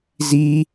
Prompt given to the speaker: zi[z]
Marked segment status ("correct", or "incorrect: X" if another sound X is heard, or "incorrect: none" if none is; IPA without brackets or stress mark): incorrect: none